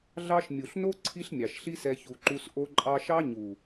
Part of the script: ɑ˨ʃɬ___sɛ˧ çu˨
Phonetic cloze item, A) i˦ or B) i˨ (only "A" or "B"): A